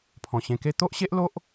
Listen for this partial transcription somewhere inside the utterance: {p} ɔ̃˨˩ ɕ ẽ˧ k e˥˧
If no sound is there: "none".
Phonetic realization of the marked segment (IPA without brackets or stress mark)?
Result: pʰ